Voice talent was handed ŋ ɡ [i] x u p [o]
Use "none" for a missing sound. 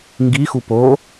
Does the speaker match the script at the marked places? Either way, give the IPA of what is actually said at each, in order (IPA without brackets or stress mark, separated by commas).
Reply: i, o